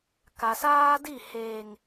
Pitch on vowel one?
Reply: low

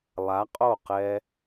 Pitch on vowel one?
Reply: rising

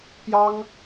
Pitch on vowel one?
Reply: high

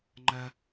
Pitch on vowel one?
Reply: high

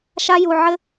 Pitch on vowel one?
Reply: high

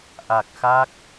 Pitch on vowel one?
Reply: low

